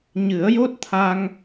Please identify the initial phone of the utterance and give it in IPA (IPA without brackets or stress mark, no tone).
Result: ɲ